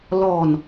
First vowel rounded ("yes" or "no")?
yes